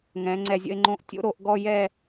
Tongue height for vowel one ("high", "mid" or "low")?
mid